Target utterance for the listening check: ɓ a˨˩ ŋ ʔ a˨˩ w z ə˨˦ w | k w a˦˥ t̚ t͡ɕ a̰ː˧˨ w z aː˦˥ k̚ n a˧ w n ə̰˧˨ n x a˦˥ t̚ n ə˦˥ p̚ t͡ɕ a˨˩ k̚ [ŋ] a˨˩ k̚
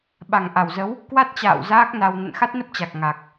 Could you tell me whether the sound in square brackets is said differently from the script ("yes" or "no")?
no